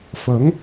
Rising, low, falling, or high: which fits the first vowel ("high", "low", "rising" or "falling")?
rising